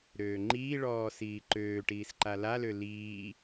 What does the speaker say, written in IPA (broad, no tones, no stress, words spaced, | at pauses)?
ɾøːŋ͡ǃiːɭɔː siːǃøːʈiːs ǃalalø liː